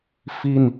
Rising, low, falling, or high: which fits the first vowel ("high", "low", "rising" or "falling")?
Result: falling